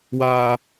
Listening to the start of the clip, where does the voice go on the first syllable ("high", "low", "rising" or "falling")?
high